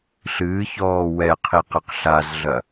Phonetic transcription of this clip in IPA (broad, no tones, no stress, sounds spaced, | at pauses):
ɬ ɨː ç ɔː w ɛ qʰ i q ɘ q ɬ a z ɮ ɐ